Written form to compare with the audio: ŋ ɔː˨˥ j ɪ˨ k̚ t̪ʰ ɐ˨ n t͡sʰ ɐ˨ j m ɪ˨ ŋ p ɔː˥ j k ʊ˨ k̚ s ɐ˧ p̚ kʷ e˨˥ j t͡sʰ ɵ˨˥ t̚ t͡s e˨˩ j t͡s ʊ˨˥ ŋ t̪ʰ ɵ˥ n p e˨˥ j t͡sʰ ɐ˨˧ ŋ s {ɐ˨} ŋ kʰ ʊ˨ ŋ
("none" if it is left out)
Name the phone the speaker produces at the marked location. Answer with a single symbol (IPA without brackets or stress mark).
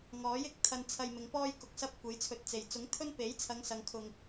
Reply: ɐ˨